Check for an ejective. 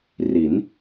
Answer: absent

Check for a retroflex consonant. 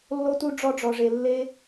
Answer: present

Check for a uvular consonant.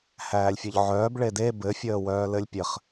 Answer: present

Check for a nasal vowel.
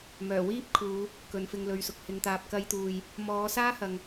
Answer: absent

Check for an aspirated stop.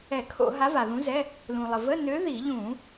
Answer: present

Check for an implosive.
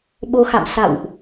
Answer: present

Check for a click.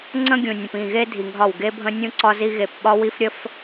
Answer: present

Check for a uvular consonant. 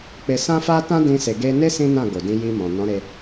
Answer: absent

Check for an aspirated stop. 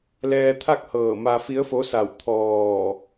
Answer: present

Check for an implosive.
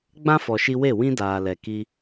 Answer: absent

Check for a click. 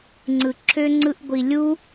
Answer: present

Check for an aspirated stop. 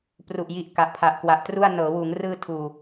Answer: present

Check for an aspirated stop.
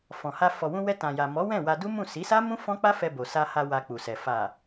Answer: absent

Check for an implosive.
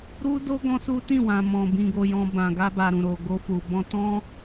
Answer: absent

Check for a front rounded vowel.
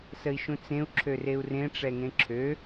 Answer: present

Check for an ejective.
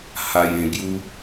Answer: absent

